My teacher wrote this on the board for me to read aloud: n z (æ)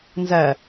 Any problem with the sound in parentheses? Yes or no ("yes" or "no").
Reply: no